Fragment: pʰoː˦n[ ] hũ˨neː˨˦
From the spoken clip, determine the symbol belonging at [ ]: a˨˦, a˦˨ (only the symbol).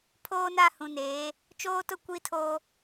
a˦˨